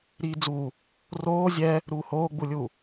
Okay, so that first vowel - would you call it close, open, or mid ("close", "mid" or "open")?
close